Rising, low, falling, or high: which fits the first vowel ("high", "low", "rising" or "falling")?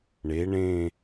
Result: rising